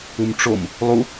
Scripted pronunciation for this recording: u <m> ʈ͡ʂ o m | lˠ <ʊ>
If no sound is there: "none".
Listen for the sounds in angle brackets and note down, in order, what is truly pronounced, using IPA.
m, u

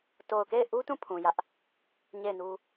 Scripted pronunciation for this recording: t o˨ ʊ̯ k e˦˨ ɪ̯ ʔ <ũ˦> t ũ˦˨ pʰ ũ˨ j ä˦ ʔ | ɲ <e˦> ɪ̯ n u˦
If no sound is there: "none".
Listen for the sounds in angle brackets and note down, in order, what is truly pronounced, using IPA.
u˦, e˦˨

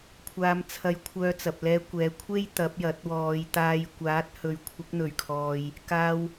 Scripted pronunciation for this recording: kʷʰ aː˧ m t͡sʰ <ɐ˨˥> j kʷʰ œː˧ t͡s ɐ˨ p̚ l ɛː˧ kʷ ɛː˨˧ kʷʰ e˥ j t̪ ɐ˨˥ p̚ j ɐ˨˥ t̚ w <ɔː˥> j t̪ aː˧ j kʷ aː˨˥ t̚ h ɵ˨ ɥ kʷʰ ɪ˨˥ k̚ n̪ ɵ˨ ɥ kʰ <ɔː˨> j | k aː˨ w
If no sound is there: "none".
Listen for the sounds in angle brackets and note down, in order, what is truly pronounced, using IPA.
ɐ˧, ɔː˨˧, ɔː˨

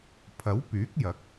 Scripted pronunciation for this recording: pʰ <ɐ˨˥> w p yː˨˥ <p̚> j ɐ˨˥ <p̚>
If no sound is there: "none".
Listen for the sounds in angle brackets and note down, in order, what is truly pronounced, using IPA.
ɐ˨˥, k̚, k̚

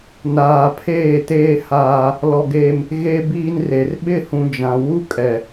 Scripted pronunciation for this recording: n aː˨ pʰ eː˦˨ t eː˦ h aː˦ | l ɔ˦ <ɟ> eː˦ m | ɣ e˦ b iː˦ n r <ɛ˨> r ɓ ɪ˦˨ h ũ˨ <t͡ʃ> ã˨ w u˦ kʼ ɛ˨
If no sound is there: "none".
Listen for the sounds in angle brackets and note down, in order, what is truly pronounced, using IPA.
ɡ, e˨, d͡ʒ

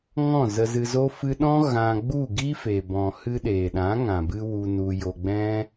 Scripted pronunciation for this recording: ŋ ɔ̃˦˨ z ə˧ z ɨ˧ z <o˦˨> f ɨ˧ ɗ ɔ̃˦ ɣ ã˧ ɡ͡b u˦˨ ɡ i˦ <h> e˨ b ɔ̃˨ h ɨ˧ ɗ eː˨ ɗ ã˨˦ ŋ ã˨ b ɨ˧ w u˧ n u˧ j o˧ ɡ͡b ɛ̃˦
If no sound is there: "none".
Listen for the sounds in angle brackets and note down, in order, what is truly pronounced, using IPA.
o˦, f

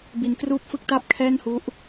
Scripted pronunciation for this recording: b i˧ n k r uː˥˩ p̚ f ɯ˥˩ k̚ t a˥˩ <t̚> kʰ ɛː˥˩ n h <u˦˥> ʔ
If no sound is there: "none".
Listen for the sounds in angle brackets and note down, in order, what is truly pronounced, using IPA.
p̚, u˦˥

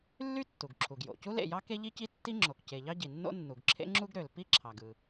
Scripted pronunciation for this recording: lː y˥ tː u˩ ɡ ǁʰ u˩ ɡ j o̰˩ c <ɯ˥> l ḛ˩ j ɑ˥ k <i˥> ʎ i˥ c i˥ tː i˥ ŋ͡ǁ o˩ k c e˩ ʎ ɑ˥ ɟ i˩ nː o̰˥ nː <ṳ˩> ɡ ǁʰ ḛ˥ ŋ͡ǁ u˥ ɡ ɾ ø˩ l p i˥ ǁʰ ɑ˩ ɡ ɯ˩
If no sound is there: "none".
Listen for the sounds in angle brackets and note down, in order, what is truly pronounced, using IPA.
u˥, e˥, u˩

